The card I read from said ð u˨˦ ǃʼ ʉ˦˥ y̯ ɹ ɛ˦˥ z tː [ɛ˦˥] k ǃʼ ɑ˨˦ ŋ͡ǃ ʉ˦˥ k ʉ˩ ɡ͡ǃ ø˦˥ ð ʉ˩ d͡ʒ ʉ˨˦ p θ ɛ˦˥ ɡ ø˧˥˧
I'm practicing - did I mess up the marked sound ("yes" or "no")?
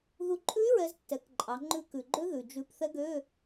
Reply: yes